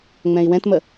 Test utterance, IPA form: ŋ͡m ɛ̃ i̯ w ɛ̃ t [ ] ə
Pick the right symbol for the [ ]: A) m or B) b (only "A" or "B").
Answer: A